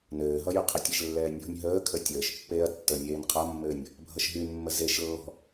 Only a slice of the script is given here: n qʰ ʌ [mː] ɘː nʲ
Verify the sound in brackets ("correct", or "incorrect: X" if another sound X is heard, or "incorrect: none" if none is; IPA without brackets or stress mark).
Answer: correct